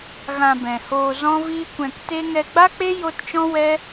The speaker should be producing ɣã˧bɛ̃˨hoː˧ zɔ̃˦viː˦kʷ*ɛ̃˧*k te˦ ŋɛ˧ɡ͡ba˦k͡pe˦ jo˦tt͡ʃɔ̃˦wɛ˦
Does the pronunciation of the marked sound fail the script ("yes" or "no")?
no